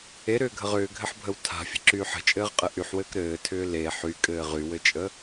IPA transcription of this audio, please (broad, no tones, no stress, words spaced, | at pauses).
eɾʏːɡʱəʁ ʏːɡʱɘħbʱəw tʰa̤fʲə̤ǁyːħ ə̤t͡ʃʼɘːʁqʼɘ ʔyħwɘːk ɾɘːtʰʏː le ħykʼɘː ʁywɘt͡ʃʼə